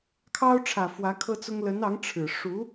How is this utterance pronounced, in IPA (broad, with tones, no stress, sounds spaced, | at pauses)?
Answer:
kʰ ɑ˥ ʊ̯ ʈ͡ʂʰ ä˨˩ f w ä˧˥ kʰ ɤ˥ t͡s ʊ˥ ŋ l ə˧˥ n ɑ˧˥ ŋ ʈ͡ʂʰ ɻ̩˨˩ ʂ u˧˥